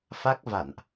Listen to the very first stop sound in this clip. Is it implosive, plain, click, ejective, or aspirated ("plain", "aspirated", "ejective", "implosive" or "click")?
plain